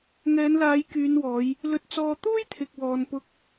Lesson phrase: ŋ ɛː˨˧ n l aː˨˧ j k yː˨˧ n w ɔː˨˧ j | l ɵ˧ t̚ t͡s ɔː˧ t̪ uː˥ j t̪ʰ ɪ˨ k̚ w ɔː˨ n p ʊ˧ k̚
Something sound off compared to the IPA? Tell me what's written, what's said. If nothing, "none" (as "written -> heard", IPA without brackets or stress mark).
none